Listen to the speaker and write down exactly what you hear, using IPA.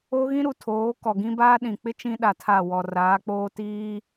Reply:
o˦ ɣ ĩ˦ ɾ u˨ tʰ oː˨˦ k ɔ˨ ɡ ĩ˦ b aː˦ ɗ ĩ˨ k͡p ɪ˦ t͡ʃ ĩ˦ ɗ a˨ tʰ a˦˨ w ɔ˨ r aː˨˦ k͡p oː˦ t iː˦

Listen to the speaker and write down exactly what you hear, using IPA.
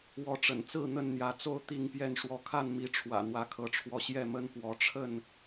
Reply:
w ɔ˨˦ ʈ͡ʂ ə̰˨˩ n t͡s ɹ̩˥˨ n̪ ə˥˨ n n̪ j ä˨˦ t͡s o˥˨ ʊ̯ t̪ i˥˨ ŋ p j ɛ˥˨ n ʂ w ɔ˦ kʰ a˥˨ n m i˨˦ ʈ͡ʂʰ w ä̰˨˩ n̪ w ä˨˦ kʰ ɤ˨˦ ʈ͡ʂʰ w ɔ˧ ɕ j ɛ˥˨ m ə˦ n p w ɔ˨˦ ʈ͡ʂʰ ə˥˨ n

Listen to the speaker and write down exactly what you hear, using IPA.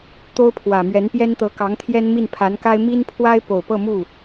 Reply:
t̪ o˥ ʊ̯ pʰ w ä˨˩ m ɥ ɛ˧˥ n p j ɛ˥ n t̪ ɤ˧˥ k ɑ˧˥ ŋ t̪ʰ j ɛ˥ n m i˥˩ n pʰ a˧˥ n k a˥ ɪ̯ m i˥ n pʰ w a˥ ɪ̯ p o˨˩ ʊ̯ p ɤ˥˧ m u˥˩

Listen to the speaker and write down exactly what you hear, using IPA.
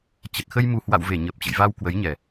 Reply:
t͡ɕ ə˨˩ t̚ x ə˧ j m u˨˩ h w a̰˧˨ w v e˧˩ ɲ ə˨˩ p̚ t͡ɕ ə̰˧˨ j v a˧ w k w ə˨˦ j ɲ ɛ˨˩

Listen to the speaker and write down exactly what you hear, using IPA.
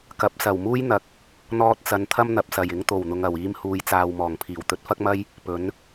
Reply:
k ɐ˨˥ p̚ s ɐ˨˩ w m uː˥ j n̪ ɐ˨ k̚ | n̪ ɔː˧ t̚ t͡s ɐ˨˧ n t̪ʰ ɐ˥ m n̪ ɐ˨ p̚ s ɐ˨˩ j ɪ˧ ŋ t̪ o˨˩ w n̪ ʊ˨ ŋ ɐ˨˩ w iː˧ m h uː˨˧ j t͡s aː˨ w m ɔː˨˩ ŋ pʰ iː˨˩ w t̪ ɵ˧ t̚ f ɐ˥ k̚ m ɐ˥ j | p ɵ˨˥ n

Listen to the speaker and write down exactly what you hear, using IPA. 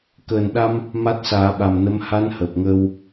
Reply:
k əː˨˩ n ɗ a˧ m | m a˦˥ t̚ s aː˨˩˦ ɓ a˨˩ m n ə˧˥ m h a˧˥ n h əː˨˩ p̚ ŋ əː˧ w

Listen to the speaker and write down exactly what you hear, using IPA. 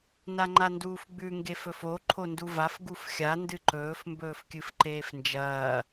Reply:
n a ŋ͡ǃ a n d uː f ɡ͡b ʉ ŋ ɡ e f ɵ f o ǃʰ o n d u v a f ɡ u f xʲ a n d ɨ ǃ ɵː f m b ɵː f kʲ ɨ f ǃ eː f n d͡ʒ ɐː

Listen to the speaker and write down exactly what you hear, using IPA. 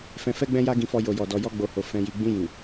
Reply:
f ɛ̃˧ f ɛ˦ ɡ͡b ɛ̃˦ j a˦ ɡ ĩ˧ f ɔ˧ j o˨ j ɔ˨ d ɔ˨ j ɔ˧ ɡ͡b o˨ h o˨ f ɛ̃˨ j i˨ ɡ͡b ĩ˧ j ĩ˨

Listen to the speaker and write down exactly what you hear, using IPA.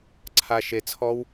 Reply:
ǀʰ a˨ ʃ e˨ t͡sʰ ɔ˦ w

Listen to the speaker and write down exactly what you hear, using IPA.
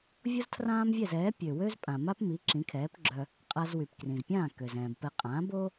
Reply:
vʲ o˥ z tʰ r ãː˥ m vʲ ɛ˥˩ z ɛː˩˥ pʲ ø˩ w ø˥ z pʼ ã˩ m a˥ p m i˩˥ ǁ ĩ˩˥ kʰ ɛː˩˥ p ɡ͡ǁ œ˧ | qʼ a˧ z w y˩ p k r ĩ˩ z pʲ ãː˥˩ k ø˩ z ɛ̃ː˩ b p ɛ˧ qʼ ã˩˥ b o˥

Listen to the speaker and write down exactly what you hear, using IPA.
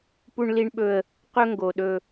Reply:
p u˦ ɳ l i˦ ɳ ɓ ɵ˦ ə̯ | q ɵ˦ ŋ ɡ o˨ ɗ ɵ˦

